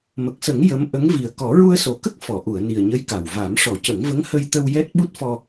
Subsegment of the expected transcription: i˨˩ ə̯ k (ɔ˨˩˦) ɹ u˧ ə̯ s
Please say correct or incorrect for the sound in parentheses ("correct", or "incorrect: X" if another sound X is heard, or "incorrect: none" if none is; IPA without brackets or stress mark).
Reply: correct